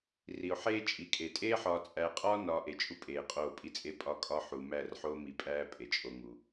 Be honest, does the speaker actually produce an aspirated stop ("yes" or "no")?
no